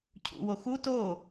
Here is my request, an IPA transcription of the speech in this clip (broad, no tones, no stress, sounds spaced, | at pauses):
cʰ ṵ w o x u t o